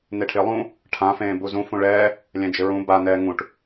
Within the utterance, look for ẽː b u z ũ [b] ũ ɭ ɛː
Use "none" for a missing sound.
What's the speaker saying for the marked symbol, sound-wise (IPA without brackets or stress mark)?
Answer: f